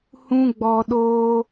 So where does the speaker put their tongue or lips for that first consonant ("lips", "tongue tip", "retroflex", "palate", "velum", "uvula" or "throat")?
throat